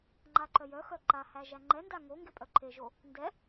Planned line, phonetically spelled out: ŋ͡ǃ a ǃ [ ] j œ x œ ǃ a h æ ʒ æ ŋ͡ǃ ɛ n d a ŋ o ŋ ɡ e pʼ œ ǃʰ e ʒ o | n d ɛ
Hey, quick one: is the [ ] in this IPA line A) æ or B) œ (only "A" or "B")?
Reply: B